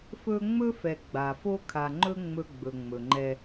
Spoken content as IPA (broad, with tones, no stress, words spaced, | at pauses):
fɵ˦ ŋ͡mɵ˦fɛ˨ ɡ͡ba˨fo˦ kʰa˨ŋ͡ǃɵ˦ ŋ͡mɵ˦ ɡ͡bɵ˨ŋ͡mɵ˨ŋ͡ǃɛ˦